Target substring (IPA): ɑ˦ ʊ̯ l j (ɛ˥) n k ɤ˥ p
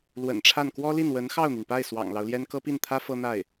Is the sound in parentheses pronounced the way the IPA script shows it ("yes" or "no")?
yes